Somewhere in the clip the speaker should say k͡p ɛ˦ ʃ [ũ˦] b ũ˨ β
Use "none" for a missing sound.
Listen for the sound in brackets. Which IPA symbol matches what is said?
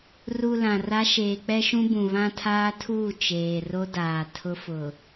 ũ˦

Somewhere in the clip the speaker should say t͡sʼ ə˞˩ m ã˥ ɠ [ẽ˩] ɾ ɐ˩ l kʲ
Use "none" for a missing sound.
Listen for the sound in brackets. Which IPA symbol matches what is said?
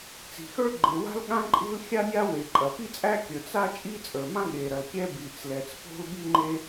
e˩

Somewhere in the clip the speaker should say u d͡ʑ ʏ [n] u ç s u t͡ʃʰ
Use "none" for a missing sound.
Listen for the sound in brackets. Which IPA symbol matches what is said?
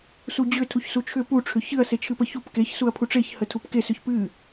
tʰ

